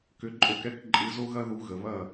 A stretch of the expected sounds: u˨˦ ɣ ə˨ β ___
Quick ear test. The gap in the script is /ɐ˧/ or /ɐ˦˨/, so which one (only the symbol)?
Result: ɐ˦˨